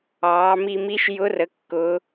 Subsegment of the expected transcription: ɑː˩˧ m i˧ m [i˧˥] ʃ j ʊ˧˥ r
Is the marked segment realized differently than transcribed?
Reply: no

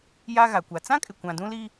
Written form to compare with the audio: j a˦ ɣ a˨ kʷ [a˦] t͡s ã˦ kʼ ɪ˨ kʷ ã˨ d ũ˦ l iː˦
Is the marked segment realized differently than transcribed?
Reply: yes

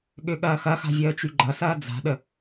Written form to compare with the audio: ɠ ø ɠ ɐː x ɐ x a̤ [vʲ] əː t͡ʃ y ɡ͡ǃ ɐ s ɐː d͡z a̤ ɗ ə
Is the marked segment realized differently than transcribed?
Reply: no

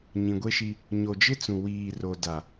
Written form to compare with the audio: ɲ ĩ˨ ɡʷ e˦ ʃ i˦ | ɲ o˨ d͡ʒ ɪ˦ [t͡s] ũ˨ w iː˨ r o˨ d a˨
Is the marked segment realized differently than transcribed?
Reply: no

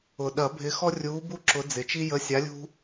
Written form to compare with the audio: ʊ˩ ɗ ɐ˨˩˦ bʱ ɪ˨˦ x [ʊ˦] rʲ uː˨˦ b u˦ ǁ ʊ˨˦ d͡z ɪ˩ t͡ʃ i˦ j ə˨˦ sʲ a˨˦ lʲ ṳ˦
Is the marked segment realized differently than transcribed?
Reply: yes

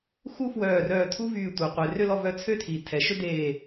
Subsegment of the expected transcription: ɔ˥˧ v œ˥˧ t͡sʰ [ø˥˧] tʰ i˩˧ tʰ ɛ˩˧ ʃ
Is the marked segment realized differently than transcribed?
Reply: yes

